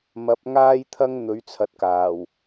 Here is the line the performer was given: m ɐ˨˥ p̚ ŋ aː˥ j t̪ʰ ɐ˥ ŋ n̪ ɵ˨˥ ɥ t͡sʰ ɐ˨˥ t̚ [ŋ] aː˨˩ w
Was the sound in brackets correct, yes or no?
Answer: no